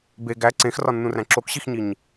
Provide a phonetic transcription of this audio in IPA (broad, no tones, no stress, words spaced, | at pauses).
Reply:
be ɡæ ǀẽxrɒnːũræ̃ ǁokɕixɲiɲ